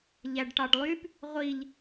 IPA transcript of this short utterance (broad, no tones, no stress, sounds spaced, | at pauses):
ʎ æ ɖ ʈ ɑ ɖ lˠ y p | ʁʷ i ʎ